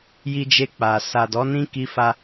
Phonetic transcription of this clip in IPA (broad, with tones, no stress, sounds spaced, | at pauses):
j i˧ d͡ʒ e˧ k͡p a˨ s a˨ d ɔ˨˦ n ĩ˦ k i˧ f a˦